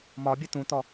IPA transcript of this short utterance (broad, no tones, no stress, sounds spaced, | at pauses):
m ɒ bʲ ə t ũ t ɔ